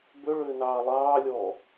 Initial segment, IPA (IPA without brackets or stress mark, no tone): b